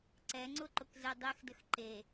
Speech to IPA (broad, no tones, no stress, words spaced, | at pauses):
ǀɛŋ͡ǀʊǃʊkzɛ dˤexdəx ǃe